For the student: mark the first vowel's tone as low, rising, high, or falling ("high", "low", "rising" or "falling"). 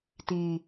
low